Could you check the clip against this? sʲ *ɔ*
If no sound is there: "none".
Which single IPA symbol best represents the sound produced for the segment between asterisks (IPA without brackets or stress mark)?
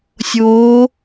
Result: o